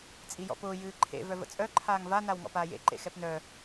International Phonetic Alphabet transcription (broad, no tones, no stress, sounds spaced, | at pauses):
t͡sʼ i j ɔ̰ p ʊː j ɨː ǃʰ ḛ v œ v ə̰ t͡sʼ œ ǃʰ aː ŋ v a n a w ŋ ɔ̰ p aː j ḛ ǃ ḛ x ɛ p n œ